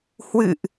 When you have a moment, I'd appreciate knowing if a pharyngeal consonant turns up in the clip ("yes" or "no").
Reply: no